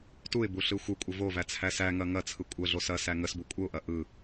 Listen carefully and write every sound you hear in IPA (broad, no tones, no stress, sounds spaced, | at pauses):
t u ɪ̯ b u ɬ ɯ xʷ ɯ kʷʼ ə v o v æ t͡sʰ æ s æ ŋ ɐ ŋ ɐ t͡sʰ ɯ kʷʼ ə ɮ o s ɐ s æ ŋ ə s b u kʷʼ ə ʊ̯ ʔ ɐ ʔ ɯ